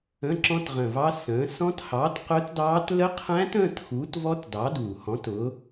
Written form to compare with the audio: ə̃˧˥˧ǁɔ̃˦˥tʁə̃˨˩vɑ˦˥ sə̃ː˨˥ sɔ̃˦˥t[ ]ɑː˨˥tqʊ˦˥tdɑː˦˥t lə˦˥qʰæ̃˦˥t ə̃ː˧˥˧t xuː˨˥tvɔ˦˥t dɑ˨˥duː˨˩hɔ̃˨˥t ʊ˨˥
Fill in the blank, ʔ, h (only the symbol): h